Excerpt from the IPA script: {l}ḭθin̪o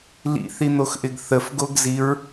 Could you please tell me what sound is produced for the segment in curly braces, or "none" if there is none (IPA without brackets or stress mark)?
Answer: l